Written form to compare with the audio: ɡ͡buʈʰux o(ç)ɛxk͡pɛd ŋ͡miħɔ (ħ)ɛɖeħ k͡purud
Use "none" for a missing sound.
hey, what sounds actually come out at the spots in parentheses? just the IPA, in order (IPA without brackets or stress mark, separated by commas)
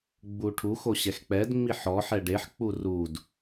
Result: ɕ, ħ